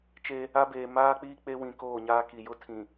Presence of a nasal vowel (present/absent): present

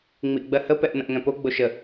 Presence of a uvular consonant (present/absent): absent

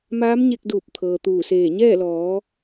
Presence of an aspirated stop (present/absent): present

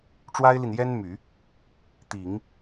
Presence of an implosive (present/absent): absent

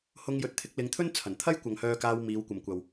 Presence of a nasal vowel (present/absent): absent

